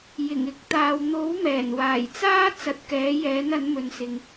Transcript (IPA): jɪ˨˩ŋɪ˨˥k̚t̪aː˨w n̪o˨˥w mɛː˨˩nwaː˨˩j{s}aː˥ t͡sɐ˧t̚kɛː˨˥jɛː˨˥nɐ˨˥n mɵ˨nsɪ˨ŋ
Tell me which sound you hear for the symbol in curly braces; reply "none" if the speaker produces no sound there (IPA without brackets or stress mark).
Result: t͡s